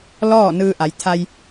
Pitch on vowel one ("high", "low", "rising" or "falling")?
falling